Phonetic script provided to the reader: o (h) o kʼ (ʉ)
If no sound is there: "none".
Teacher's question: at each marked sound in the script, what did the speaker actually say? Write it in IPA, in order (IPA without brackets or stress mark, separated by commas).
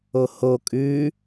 h, ʉ